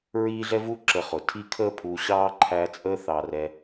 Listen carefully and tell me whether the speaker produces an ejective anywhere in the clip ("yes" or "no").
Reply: yes